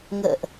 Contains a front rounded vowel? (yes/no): no